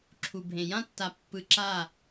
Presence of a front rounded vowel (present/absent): absent